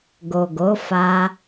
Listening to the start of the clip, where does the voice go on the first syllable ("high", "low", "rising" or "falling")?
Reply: low